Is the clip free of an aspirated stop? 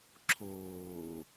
no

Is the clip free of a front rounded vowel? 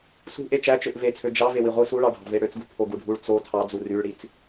no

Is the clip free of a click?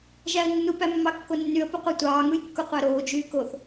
yes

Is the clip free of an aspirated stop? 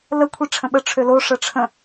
no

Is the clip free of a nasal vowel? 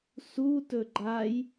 yes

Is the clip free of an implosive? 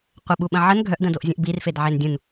no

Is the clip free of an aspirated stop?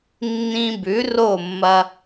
yes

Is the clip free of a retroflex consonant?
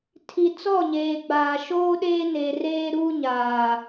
yes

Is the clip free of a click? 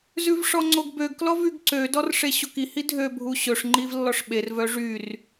no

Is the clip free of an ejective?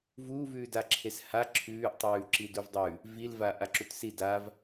yes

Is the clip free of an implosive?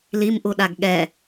no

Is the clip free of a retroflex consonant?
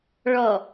no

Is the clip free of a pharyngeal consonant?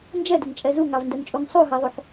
no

